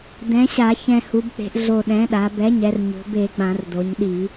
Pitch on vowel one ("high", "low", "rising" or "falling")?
rising